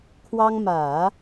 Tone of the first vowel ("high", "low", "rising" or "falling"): high